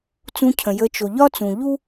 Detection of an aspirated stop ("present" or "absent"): present